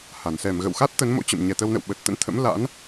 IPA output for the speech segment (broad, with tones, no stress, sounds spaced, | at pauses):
h a˧˩ n s ɛ˧˩ m ɣ ə̰˧˨ w x a˦˥ t̚ t̪ ə˨˦ n m o̰˧˥ t͡ɕ ə̰˧˨ m ɲ ɛ˨˩ t̪ ə˧ w n ə̰˧˨ w ɓ ə˨˩ t̚ t̪ ə̰˧˥ n t̪ʰ ə̰˧˥ m l a̰˧˥ n